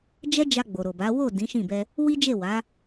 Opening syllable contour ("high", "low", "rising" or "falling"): high